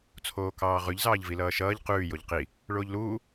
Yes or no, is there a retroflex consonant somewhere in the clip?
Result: yes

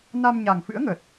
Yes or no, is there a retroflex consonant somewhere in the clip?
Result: no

